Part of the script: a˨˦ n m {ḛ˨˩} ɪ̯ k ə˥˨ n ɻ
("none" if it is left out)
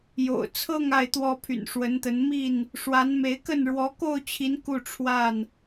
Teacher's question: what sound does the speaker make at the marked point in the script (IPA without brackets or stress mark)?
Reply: e˨˦